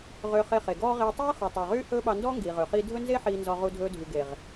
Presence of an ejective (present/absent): absent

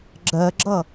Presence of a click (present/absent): present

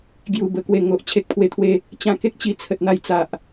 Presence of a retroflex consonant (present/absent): absent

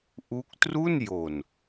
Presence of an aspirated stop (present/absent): absent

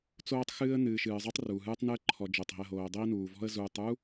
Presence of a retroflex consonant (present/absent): absent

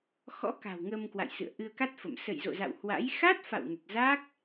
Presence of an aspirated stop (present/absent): absent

